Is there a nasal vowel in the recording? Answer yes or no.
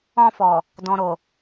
yes